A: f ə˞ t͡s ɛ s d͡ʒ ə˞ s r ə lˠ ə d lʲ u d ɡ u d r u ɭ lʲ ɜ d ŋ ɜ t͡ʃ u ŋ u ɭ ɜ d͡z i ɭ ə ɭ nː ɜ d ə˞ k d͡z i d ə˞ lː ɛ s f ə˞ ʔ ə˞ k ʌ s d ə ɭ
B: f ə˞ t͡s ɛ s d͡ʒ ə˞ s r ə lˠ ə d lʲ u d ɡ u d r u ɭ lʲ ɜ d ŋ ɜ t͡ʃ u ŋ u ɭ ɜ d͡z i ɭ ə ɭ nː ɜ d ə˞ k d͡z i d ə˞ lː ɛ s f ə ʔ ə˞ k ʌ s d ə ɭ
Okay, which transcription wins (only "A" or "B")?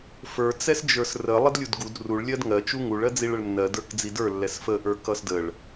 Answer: B